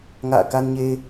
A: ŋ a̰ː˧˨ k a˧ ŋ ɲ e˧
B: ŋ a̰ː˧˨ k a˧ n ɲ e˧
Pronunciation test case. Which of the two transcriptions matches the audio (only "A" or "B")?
B